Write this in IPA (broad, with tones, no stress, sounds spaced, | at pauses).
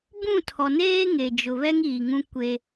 b ũ˦˨ tʰ ɔ˨ n eː˦ ŋ e˨ d͡ʒ ʊ˨ β ɛ˦ ŋ iː˨ ŋ ũ˦ kʷ e˦